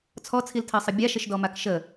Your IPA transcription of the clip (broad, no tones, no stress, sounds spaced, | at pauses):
t͡sʰ ɔ t͡sʰ i l tʰ ɜ sˤ ə bʲ a ʃ ə ʃ d ɔ m a k ʃ ə